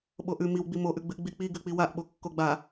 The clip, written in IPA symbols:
ɓ o ʔ ʉ m i w ɡ͡b i m o ʔ ʉ ɡ͡b ɨ ʔ ɡ͡b i k͡p i ɡ ʉ k͡p i w a ʔ ɓ o kː o ɡ͡b a

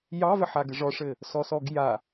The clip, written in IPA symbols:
j ɑ v ɘ ħ a ɡ ɘ ʐ ɔ ʂ ɘ | s ɔ s ɔ ɡ j a

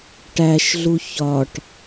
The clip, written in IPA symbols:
ʈ æ ʃ ɮ u ç ɒ ʈ

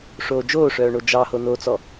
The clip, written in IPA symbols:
ʂ oː d͡ʒ oː ʂ œː ɳ o d͡ʒ ɑ h o n o t͡s ɔ

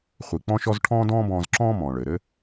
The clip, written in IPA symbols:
χʷ i˩ k͡p ɔ̃˧ ʃ ɔ˧ z ʈʰ ɔ̃ː˥ d ɔ̃ː˥ b ɔ̃ː˧ z ǁ ɔ̃ː˥ m ɔ̃ː˩ ɭ ɘː˩ ɾ ɘ˥

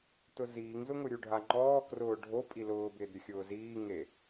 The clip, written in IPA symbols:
t ʊ z iː ŋ z ʊ ŋ ʊ ɾʲ u ɖʱ a ŋ͡ǃ ɔː k r ʊː ɖʱ o pʼ i l ʊː b ɪː d ɾʲ ʊ xʲ ʊː z iː ŋ e

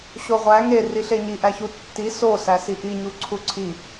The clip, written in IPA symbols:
ɕ o ʁʷ æ ŋ e r i ɬ e ɲ i ʔ æ ç u tː i s o s æ s i ʔ i ɲ u ǀʰ u ǀʰ i

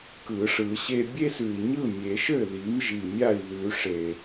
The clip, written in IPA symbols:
k ɯ˨˩˦ ʂ ɯ˨˩˦ ɕ e˦ bʲ e˦ s ʉ˨˩ i̯ ɲ ɯ˥˩ mʲ e˨˩˦ ʃ ɘ˥˩ ð i˩˥ m ʒ i˨˩ mʲ a˥˩ i̯ ð ʉ˨˩˦ ʂ e˨˩

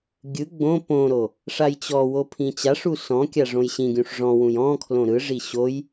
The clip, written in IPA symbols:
ɡʲ ɯ ɡ͡b õ p õ ɾ o | ʂ a j t͡ɕ ɔ w o pʰ ĩ t͡ɕ a ʂ u s ɔ̃ kʲ a ʐ õ j ɕ ĩ ɡʲ ũ ʂ ʐ ɔ̃ w ũ j ɔ̃ kʰ l õ ɾ ɯ ʐ i ɕ o j

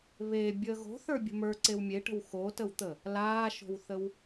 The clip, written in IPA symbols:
β e bʲ əː ɣ o̤ θ ə˞ bʲ ə̤ m ə˞ ǀ e w mʲ e ʈ ə̤ w x o t ə w t̪ ə | l aː ʃ o̤ w θ ə w

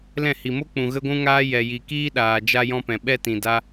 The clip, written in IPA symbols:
l ɛ̃˦˨ h i˨ m o˦ k͡p ũ˨ ɣ ə˦ ɡʷ ũ˦ ŋ aː˦ j ɛ˨ j i˨ k iː˦ ɗ aː˨ d͡ʒ a˦ j ɔ̃˦ p ɛ̃˨ ɓ ɛ˧ t ĩ˨ d a˦

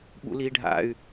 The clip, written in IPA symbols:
ɓ ṵ l iː ɖʱ a̰ y̯

